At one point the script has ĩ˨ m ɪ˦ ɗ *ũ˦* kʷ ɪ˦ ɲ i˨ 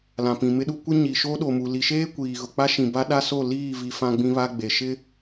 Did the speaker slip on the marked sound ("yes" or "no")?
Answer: yes